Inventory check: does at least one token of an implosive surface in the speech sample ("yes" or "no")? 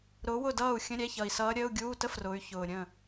no